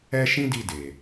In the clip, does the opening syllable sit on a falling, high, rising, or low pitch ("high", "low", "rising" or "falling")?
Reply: high